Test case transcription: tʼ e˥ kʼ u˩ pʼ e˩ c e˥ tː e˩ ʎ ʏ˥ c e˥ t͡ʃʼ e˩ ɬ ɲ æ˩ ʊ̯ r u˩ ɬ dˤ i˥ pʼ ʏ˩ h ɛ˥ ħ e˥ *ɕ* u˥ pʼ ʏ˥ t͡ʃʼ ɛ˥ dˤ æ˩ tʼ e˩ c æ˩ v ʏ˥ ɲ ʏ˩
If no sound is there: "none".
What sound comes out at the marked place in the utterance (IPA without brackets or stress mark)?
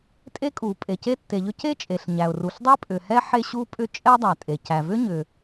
ɕ